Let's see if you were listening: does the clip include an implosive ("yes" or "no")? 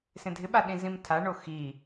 yes